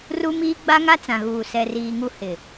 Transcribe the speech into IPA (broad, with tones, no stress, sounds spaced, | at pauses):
r u˦ m iː˦ ɡ͡b a˦ ŋ a˦ t͡s ã˨ ɣ uː˨ s ɛ˨ r iː˨ ŋ u˦ h ɪ˨